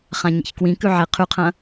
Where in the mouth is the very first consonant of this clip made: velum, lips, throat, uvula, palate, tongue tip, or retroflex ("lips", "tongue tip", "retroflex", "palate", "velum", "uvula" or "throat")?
uvula